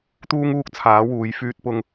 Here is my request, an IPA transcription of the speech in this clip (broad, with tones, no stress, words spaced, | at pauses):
t̪uː˥ŋuː˥k̚t͡sʰaː˨˥wuː˨˧j fyː˥t̚pʊ˥ŋ